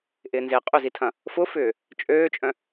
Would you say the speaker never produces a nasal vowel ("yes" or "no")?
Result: no